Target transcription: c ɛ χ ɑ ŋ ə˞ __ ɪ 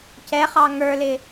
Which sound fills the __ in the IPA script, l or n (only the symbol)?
l